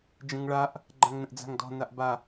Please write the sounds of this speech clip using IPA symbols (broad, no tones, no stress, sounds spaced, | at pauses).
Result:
d͡ʒ ə̃ ŋ ɭ a ʔ | ɡ͡ǃ ã ŋ n ə̃ ʔ d͡z a̤ ŋ d ɔ̤ n a ʔ b a